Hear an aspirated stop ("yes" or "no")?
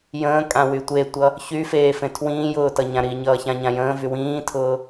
yes